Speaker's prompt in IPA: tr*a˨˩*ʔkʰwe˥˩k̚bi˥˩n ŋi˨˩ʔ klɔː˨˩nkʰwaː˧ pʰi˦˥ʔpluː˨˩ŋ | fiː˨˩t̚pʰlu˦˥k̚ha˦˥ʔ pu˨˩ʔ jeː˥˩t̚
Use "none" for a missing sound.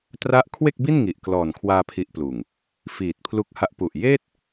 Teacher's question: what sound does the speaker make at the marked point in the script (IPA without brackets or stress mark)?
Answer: a˦˥